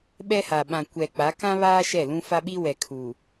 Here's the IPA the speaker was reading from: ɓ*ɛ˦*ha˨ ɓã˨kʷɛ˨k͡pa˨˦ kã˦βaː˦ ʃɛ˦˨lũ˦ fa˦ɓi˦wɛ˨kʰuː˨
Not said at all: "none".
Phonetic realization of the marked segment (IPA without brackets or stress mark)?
ɛ˦